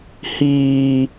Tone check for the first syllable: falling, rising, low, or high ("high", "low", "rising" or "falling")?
low